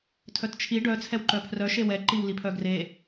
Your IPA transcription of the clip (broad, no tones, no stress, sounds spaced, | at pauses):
tʰ œ t t͡ʃʰ i ɖ œ t͡sʰ ɛ w ǃ œ pʰ r œ ʃ e w ɛ ǃ i w l i pʰ œ ɡ r e